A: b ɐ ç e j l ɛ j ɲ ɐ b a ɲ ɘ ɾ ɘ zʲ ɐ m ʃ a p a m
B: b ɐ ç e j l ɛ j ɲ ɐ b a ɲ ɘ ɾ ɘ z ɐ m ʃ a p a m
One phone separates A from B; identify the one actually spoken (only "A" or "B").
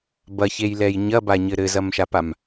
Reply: B